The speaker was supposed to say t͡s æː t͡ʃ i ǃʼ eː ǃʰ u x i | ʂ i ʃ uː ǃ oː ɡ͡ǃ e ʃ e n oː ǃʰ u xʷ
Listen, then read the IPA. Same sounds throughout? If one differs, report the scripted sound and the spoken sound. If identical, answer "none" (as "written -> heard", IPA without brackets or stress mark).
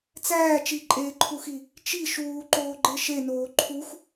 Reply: ʂ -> t͡ʃ